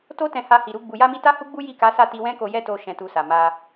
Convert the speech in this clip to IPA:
t o˦ t ɛ̃˧ h a˧ h i˨ ɾ u˧ ɡ͡b u˨ j a˧ m i˧ t a˦ h u˦ ɡ͡b u˦ j i˦˨ k a˨˦ s a˦˨ t i˧ w ɛ̃˦ k o˧ j ɛ˦ t o˧ ʃ ɛ̃˧ t u˧ s a˨ m a˧

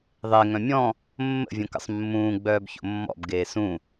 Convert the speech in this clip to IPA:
ðˤ e ŋ œ̃ mʲ ɔ̃ | mː ə̰ vʲ õ k ə̰ sˤ mː ũː ɡ͡b œː b ç o̰ mː ɔ̰ b ɡ eː s ũ

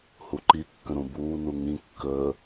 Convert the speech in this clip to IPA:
h u ǃ i kː ə̃ ɾ ũ b uː n u ŋ ĩ kː əː

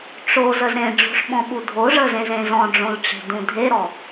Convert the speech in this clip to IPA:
ʈ͡ʂ o z ə z ɾ ẽ ɖ͡ʐ o̤ ʂ ɓ ɔ̃ ɓ u dʱ o ʐ ə z ẽ z ẽ z ɔ̃ ɖ͡ʐ õ l ʈ͡ʂ e̤ d ũ dʱ e ɾ ɔ

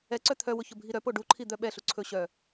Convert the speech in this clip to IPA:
ɛ ǀ œ t̪ʰ œ w ʊ ç ʊ bʱ i ɾ œ p o ɖ u ǃʰ i d̪ œ ɓ ɛ ɬ u ǀʰ ɵ ɕ œ

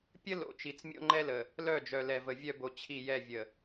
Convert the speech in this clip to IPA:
pʲ ə˦ l o̰˨ t͡ʃ i˨ t͡s mʲ o̰˦ ŋ͡ǃ ɛ˦ l ə˨ | l œ˦˨ d͡ʒ œ˨ l ɛ˨ v ə˨ vʲ œ˦ b o˨˦ t͡ɕʰ i˦˨ j ɛ˦˨ vʲ ə˨

